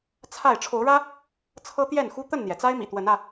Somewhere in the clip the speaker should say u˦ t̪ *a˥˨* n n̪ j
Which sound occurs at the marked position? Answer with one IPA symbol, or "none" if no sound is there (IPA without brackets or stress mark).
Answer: ə˥˨